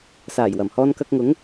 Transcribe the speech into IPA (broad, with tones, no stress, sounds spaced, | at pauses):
s aː˨˩ j w ɐ˨˩ m h ɔː˧ n k ɐ˧ k̚ ŋ ʊ˨˥ ŋ